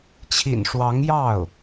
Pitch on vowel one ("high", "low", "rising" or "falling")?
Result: low